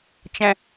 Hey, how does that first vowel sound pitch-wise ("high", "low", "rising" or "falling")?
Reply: low